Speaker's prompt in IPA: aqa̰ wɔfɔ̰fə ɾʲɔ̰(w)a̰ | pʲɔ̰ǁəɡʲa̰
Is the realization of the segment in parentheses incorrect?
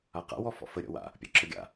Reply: no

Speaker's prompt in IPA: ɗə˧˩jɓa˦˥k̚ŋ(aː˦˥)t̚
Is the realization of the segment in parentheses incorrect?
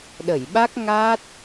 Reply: no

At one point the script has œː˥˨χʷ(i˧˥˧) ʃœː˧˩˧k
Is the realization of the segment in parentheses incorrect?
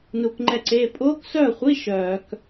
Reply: no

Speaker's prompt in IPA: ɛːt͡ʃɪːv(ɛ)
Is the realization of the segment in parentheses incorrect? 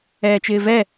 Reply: no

